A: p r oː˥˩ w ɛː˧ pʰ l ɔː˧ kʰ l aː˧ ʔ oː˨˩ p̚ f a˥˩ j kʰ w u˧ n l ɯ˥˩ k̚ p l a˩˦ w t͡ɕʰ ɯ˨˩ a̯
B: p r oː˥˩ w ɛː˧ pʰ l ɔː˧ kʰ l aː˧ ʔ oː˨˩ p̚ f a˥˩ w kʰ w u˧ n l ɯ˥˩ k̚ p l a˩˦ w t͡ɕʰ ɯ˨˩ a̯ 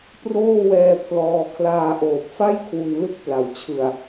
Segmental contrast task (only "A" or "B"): A